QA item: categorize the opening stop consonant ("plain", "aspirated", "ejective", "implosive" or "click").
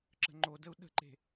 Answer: click